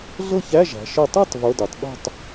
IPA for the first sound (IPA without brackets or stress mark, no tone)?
ɮ